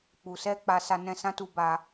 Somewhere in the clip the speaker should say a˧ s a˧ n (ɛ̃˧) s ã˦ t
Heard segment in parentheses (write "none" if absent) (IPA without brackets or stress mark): ɛ̃˧